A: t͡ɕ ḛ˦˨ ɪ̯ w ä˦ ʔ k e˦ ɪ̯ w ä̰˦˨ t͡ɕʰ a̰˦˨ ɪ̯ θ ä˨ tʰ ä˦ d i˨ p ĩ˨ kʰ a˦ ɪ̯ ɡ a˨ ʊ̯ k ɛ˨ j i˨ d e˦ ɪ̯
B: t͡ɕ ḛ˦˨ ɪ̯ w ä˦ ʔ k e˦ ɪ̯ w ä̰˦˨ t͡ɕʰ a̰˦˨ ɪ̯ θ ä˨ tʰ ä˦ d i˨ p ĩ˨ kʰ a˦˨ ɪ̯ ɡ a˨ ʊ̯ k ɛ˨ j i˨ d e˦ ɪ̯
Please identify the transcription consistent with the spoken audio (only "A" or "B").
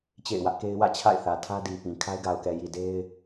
A